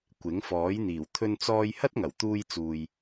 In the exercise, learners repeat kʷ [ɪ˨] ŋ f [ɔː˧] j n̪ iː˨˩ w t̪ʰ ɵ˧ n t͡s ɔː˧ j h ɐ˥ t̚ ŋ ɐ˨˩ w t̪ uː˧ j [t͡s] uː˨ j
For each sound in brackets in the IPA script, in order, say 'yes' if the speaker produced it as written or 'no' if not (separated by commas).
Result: no, no, yes